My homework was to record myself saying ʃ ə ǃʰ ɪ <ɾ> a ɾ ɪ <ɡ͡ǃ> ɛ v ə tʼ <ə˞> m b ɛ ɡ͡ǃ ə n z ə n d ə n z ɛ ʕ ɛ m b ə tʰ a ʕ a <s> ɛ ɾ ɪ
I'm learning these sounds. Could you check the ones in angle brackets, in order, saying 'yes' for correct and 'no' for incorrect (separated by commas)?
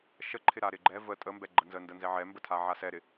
yes, yes, no, yes